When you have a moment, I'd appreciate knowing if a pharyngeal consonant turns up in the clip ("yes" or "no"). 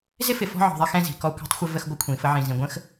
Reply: yes